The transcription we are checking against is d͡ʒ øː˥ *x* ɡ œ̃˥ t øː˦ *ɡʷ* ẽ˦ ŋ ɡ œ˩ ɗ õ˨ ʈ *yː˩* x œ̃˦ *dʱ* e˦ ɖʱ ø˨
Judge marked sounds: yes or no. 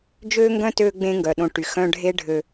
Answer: no, no, no, no

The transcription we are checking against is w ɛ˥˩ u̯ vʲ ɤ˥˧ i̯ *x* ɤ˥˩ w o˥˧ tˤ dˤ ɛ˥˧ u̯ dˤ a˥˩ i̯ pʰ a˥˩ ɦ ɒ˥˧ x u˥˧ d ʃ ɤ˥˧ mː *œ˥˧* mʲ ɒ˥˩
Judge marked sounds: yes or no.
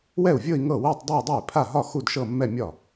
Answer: no, no

